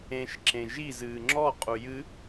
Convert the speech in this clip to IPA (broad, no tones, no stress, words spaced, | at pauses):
ẽʃ ǁẽʒiz ɨːŋ͡ǁɔ qʼujɨ